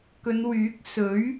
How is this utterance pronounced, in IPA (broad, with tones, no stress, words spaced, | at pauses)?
kɵ˨˧nwyː˨˥k̚ sɵ˨˥ɥ